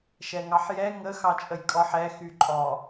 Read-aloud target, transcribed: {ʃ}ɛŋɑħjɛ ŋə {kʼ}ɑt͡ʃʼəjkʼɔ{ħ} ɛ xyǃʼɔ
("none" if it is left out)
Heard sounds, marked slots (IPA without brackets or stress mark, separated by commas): ʃ, x, ħ